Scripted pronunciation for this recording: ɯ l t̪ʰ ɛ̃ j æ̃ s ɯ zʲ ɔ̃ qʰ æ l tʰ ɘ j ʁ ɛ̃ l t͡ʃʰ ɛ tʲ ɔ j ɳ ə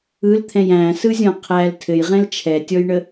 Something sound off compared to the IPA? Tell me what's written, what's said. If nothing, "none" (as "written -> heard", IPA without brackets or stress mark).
none